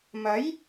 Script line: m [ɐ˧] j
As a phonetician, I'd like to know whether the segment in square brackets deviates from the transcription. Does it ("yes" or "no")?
yes